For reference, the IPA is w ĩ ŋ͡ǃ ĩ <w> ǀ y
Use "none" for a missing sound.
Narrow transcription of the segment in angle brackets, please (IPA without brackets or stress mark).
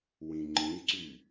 none